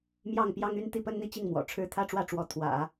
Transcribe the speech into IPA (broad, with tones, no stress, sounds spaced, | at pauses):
m j ɑ˥˩ ŋ p j ɑ˥ ŋ y˥ n t̪ i˥˩ p ə˥ n n̪ i˥˧ t͡ɕ i˥˩ ŋ m w ɔ̰˨˩ ʈ͡ʂʰ ɻ̩˥ t̪ʰ ä˥ ʈ͡ʂ w ä˥˩ ʈ͡ʂ w ɔ˧˥ t̪ʰ w ä̰˨˩˦